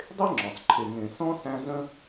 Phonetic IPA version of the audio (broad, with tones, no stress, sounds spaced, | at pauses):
dˤ e˥ ŋ͡ǁ ɔ̃˩ sˤ ǃʰ e˨ ŋ ẽ˨ s ɔ̃˥ s æ̃˦ z ə̃˥